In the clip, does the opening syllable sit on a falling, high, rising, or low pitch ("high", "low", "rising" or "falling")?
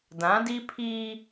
rising